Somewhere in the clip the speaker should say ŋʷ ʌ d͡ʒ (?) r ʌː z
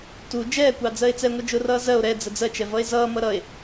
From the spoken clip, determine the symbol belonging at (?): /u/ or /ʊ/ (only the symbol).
ʊ